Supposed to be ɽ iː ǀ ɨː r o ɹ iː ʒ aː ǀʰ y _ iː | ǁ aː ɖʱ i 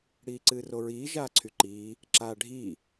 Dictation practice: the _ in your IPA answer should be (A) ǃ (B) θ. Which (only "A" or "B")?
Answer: A